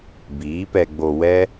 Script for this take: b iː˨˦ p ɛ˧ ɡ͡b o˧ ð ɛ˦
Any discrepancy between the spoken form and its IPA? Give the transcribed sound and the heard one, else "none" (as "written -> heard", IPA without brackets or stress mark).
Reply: ð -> w